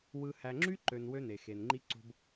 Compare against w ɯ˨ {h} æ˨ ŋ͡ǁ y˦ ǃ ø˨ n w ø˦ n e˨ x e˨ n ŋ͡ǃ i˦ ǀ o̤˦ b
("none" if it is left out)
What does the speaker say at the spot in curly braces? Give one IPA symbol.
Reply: h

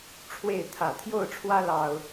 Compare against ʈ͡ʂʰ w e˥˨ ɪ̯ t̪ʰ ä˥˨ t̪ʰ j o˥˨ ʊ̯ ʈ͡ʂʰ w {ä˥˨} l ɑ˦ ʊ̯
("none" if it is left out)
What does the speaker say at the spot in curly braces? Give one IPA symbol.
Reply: ä˦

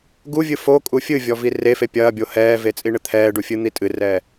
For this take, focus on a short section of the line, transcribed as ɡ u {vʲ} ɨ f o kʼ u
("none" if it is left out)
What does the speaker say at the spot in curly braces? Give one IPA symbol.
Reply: vʲ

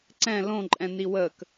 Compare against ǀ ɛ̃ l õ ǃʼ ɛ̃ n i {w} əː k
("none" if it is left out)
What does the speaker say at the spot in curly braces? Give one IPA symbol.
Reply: w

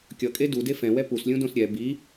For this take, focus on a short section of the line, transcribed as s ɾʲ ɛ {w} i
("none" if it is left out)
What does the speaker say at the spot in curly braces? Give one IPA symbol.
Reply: b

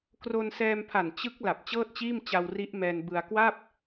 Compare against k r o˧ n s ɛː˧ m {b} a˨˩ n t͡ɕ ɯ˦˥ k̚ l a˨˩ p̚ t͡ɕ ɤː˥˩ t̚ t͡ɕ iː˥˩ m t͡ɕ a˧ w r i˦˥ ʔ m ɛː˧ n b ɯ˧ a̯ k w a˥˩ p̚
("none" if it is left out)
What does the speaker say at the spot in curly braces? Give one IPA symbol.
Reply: pʰ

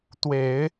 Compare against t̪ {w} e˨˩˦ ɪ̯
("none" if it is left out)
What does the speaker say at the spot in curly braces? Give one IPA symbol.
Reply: w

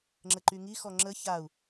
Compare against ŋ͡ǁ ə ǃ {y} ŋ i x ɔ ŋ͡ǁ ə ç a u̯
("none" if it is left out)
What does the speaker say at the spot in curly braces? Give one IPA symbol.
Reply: y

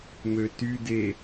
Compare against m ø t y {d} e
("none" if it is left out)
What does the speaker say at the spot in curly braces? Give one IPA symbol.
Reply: d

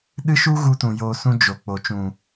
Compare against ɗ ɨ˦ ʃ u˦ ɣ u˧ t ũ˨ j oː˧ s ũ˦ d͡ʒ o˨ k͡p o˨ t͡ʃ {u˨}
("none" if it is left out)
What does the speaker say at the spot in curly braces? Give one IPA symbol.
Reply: ũ˨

